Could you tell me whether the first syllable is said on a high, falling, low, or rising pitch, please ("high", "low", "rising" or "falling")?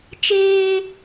high